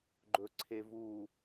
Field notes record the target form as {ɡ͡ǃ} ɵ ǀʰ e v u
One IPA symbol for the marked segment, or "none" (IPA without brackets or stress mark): ɡ͡ǃ